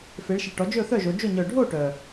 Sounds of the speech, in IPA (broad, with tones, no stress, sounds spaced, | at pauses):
f e˩˧ ɭ ʃ e˨˩ ʈ ɔ˩˧ d͡ʒ ɵ˥˨ θ œ˥˨ ʒ o˩˧ d͡ʒ o˥˨ ɲ œ˨˩ ɖʱ o˥˨ ʈ œ˨˩